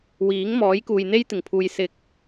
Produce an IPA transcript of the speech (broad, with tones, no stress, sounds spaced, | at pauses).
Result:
w iː˨˥ ŋ m ɔː˨˥ j k uː˨ j n̪ e˥ j t̪ ɪ˨˩ ŋ pʰ uː˨ j s ɪ˨ k̚